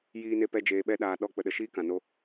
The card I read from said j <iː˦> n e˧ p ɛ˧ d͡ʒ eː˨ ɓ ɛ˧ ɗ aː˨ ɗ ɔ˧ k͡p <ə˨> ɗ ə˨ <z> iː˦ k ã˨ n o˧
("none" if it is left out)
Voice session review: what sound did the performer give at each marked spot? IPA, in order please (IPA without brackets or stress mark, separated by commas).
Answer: iː˧, ə˨, ʃ